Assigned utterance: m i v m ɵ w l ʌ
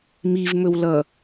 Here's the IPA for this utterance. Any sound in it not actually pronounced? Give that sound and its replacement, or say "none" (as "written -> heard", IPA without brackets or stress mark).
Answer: none